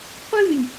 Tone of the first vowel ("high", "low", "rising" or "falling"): falling